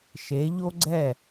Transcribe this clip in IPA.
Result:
ʃ e˩˧ ʎ o˥ ɡ͡ǀ ɛ˥˩

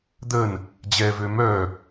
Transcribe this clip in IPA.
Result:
d̪ ə n | d͡ʑ ɛ v ø m œ

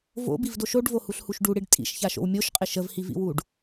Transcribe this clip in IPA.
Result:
v o̰ b i v d o ʃ o ɖ v o h u ɬ h u ʃ ɖ u ɽ i ɖ tʼ ḭ ʃ ç a ʃ o̰ w mʲ o ʃ qʼ ɪ ʃ ə v h i v ḭ w u ɖ

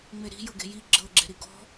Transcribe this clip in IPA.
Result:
ŋ͡m e ɾ i̤ j ɤ ɡ e̤ j i ɡ͡ǁ ɤ ɡ͡ǁ e̤ ɾ i ɡ ɔ̤

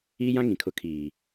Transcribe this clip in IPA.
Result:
iː˦ j ã˦ ŋ ĩ˨ kʰ ʊ˦ kʰ iː˨

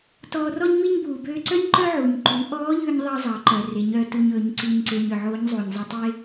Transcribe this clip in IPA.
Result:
t ɔː˧ r ɔ˥ ɲ m i˥ ɲ b uː˩ b øː˧ ǀ œ˥ ɲ ǃ œ˥ ʕ uː˩ ɲ ǃ ʉ˩˧ ʔ ɔː˧˥ ʎ ʉ˧ ɲ ðˤ ɑ˥ zˤ ɑ˩˧ ǃ œ˩ r e˩˧ ɲ œ˩˧ t u˧ ɲ ɵː˩˧ ɲ ǀ i˧ ɲ ǀ e˧ ɲ ø˩ ʕ oː˧˥ ɲ zˤ uː˩ ɲ zˤ ʉ˧ tˤ e˥

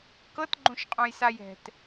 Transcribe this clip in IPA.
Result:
k ɤ t ɡ͡ǃ õ ʃ qʼ õ j s a j ɛ̤ t

